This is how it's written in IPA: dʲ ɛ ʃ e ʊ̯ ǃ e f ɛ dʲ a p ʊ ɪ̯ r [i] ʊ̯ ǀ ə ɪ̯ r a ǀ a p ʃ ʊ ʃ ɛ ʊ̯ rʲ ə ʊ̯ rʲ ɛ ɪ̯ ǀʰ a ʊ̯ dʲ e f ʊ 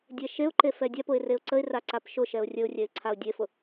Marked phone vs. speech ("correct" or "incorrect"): incorrect